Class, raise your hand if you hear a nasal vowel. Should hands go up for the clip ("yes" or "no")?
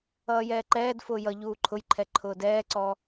no